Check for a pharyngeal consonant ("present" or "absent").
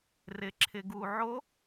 present